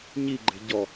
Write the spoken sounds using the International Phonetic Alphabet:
ɲiɡ͡ǃe̤ ɟɔ

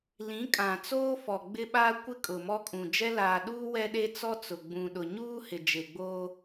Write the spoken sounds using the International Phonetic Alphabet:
lĩ˨˦kʼã˨ t͡soː˦fɔ˨ ɡ͡bɪ˦ɓa˦ kʷɪ˦kʼʊ˨mɔ˦kʼũ˨ d͡ʒɛ˦laː˨ɗuː˦ wɛ˦ɗe˦t͡sɔ˦t͡sʊ˨ ɡ͡bũ˨ɗʊ˨ ɲuː˦ hɪ˨d͡ʒe˨ɡ͡boː˦

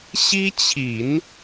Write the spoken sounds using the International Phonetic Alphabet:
ɕi˥t͡ɕʰi˨˩˦n

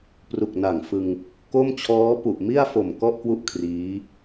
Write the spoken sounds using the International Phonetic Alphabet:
pru˨˩k̚na˨˩ŋfɯ˧ŋ | ko˥˩mt͡ɕʰɔː˦˥ pu˨˩ʔmi˥˩a̯fo˨˩m kɔ˥˩ʔkwu˥˩ʔ kʰriː˦˥

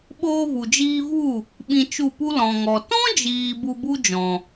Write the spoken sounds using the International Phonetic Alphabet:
ɓoː˧vu˨d͡ʒiː˧vu˦˨ | ɓĩ˧t͡ʃu˦˨pu˦ lɔ̃˨ŋɔ˨ tɔ̃˦d͡ʒiː˨ bu˧bu˦d͡ʒɔ̃˨

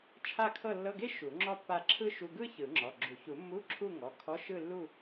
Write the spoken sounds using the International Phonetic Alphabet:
t͡ʃʰa˥˧kʰɤ˥˧ lːɤ˧˥˧ɡe˥ ʃu˨˩˦ŋ͡ǁɔ˥pːa˥˧ ǁʰɯ˥ʃu˧˥˧ ɡɯ˥ çɯ˨˩˦ŋ͡ǁɔ˩˧˩ɡ͡ǁu˨˩˦ çu˨˩˦mːu˧˥˧ ǁʰu˥˧ŋɔ˩˧˩ kʰɔ˧˥˧ʃɯ˥˧lːu˥˧

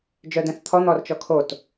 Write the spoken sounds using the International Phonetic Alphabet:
d͡ʒœdɛ̃θt̪ʰɔ n̪ɔrt͡ʃɔkʰot

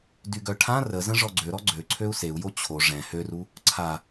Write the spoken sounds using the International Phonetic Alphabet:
dyɡœʈʰã rəzə̃ ʐɔɡ͡ǀøɾɔ ɡ͡ǀø ǀʰøu̯seu̯jo t͡ɕʰo ʐɛ̃ høru | ǀʰa

